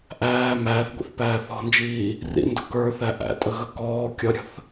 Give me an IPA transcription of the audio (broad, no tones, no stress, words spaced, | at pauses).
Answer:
ʔæː mæːθɡʷḭθpæː θɔ̤nd͡ʒiː | rḭndʊ kə˞θæ ʔæ̰tʼəɣə kɔː kʲʌɾʲə̤θ